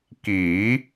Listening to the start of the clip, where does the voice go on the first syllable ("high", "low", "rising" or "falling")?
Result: rising